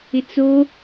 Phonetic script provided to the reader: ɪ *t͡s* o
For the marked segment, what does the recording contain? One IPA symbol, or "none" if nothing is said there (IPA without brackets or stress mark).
t͡s